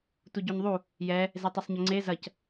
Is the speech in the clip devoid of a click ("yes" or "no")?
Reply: no